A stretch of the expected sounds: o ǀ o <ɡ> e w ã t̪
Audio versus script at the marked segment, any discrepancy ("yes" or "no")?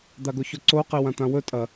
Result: yes